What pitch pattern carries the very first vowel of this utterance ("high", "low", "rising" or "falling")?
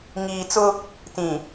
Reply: low